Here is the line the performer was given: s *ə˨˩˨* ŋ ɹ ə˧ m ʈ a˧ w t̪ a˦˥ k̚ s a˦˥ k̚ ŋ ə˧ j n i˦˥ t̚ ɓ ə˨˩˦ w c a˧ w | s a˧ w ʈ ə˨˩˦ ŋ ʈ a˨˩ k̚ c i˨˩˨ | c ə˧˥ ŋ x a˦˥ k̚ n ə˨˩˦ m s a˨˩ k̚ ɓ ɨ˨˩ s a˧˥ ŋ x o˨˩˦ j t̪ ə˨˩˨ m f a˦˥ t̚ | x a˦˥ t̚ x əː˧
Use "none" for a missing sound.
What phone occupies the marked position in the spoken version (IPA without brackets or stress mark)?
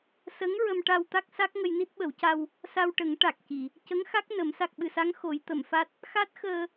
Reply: ə˧˥